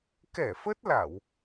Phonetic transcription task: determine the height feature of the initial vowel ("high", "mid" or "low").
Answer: mid